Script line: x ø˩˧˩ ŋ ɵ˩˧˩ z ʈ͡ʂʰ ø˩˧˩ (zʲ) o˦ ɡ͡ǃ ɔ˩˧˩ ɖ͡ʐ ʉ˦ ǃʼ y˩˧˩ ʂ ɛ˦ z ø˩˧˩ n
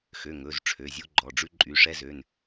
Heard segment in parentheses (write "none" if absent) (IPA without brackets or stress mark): zʲ